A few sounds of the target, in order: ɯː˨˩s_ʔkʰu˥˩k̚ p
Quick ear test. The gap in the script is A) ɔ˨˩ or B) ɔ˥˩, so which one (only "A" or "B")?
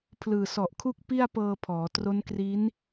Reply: A